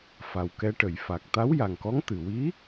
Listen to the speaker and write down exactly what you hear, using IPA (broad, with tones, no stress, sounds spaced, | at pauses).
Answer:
f a˨˩ w k ɛ˧ ʈ ə˨˩˨ j f a˨˩ k̚ t̪ a˧˥ w j a˨˩ ŋ k ɔ˧˥ ŋ t̪ ɨ˨˩ w i˧˥